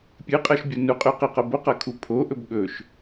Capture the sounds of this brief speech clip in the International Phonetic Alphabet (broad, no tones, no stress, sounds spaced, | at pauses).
pʲ ɨ qʼ ɐ ʃ bʲ o n u qʼ ʉ q i q ɐ b o q ɐ kʰ u pʰ o ʔ ɵ b ɠ ɵ ʃ